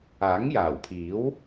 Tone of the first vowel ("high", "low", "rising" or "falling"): rising